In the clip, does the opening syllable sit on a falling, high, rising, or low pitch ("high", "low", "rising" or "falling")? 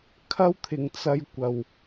high